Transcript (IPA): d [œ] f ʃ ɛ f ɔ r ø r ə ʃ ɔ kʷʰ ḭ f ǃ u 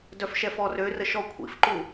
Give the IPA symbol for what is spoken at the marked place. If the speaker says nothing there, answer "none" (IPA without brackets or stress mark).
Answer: œ